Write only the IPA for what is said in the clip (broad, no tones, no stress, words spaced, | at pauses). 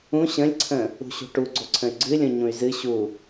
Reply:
ũ ɕə̃lʲǀʰə̃ | ṳɕṳʈuɡ͡ǀo ǀʰə̃y̯ɡ͡ǀɨlʲõ ɲũy̯zɨ ɕu